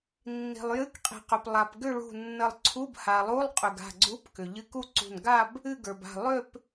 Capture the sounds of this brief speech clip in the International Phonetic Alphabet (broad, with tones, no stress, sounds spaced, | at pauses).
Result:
nː i̤˩ lˠ j ɨ˧˥˧ k qʼ i̤˩ q ʏ˩ p lˠ a˩ p ɡ ʏ˥˧ ɭ ṳ˧˩ nː ə˧˩ lˠ ǀʰ u˧˥˧ b h a˩ lˠ u˧˥˧ lˠ qʼ ʏ˩ ɡ a̤˧˩ ɡ͡ǀ u˧˥˧ p k ʏ˩ ʎ ɨ˧˥˧ k u˥˧ ǀ ṳ˧˩ n ɡ a˥˧ b | ɨ˥˧ ɡ ə˞˩ b a̤˧˩ lˠ ʏ˥˧ p